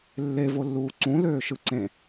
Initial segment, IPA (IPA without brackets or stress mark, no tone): lː